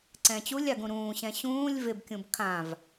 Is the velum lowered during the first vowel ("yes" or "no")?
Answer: yes